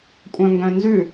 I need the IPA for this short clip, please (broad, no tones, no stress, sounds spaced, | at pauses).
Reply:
kʷʼ œ̃ ŋ ɡ œ̃ n z ʉ